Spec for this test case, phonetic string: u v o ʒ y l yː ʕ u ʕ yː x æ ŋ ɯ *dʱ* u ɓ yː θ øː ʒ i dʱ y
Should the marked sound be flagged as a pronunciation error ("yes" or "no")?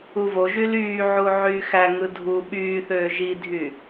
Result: no